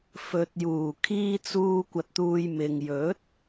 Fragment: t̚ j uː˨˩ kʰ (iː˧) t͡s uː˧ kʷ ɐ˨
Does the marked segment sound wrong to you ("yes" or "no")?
no